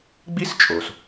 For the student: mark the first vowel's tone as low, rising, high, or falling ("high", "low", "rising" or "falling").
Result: high